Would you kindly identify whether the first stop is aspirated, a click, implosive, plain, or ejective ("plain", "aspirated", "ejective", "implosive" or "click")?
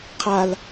aspirated